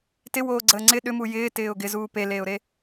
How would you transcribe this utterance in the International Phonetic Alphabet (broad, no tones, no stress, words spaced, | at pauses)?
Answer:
tɪwoːɡ͡ǀəː ŋ͡ǀɪ ɗʏmu jɪːtɪːʊ̯ ɡɪzuː peleːʊ̯ɾe